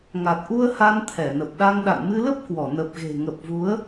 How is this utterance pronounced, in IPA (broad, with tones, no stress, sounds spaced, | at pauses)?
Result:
ŋ a˨˩ t̚ ʔ u˧ ə̯ h a˧ n t̪ʰ ɛ˧˩ n ə˨˩ p̚ ɗ a˧ ŋ ɗ a̰˧˨ n m ɨ˧ l ə˦˥ p̚ k w ɔ˧˩ n ə˨˩ p̚ ɣ e̤˨˩ ŋ ə˨˩ p̚ v u˨˦ ə̯